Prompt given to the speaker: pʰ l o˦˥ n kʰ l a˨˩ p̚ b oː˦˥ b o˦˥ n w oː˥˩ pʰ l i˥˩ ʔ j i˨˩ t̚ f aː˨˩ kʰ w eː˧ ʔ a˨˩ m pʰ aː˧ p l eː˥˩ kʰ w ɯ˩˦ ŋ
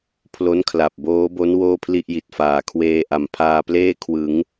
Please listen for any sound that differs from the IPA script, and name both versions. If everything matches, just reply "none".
none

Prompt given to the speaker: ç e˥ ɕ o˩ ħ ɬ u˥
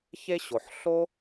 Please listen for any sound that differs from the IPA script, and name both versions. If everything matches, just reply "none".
u˥ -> o˥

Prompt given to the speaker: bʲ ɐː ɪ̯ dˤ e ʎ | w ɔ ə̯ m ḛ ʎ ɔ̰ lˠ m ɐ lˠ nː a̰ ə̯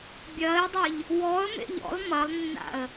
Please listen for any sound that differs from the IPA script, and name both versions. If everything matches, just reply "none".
none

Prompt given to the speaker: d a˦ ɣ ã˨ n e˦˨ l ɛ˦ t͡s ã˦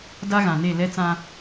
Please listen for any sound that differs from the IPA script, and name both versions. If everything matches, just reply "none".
none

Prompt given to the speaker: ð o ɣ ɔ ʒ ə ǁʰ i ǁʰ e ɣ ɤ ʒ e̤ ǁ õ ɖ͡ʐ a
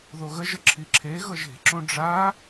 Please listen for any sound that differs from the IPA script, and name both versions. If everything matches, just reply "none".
ɔ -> ə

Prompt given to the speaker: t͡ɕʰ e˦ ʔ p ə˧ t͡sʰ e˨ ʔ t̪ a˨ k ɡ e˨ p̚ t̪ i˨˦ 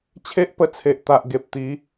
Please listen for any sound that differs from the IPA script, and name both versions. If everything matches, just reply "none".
k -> ʔ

